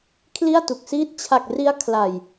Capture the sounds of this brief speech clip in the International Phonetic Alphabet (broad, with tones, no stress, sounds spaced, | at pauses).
kʰ l i˥˩ a̯ t u˨˩ k̚ s iː˦˥ t̚ t͡ɕʰ a˨˩ k̚ r i˦˥ a̯ kʰ l a˨˩ j